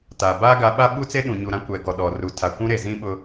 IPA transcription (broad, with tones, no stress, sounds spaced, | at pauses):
t a˨ b aː˦ ɡ a˨˦ ɓ a˦ ɓ u˦ t͡s e˦ ɗ ũ˨ ɲ u˨ ɾ ã˦ kʷ ɛ˨ ɡ ɔ˨ ɗ ɔ˨ r u˨ tʰ a˨ kʷ ũ˦ ɾ e˨ z ĩ˦ ɓ ʊ˦